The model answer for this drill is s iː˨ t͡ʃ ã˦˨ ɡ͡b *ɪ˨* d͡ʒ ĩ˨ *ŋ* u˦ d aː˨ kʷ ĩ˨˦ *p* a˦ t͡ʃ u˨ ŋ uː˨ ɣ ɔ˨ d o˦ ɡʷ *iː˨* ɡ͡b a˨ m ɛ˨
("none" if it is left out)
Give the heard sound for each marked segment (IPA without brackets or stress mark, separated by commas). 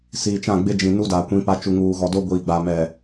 ɪ˦, n, p, iː˨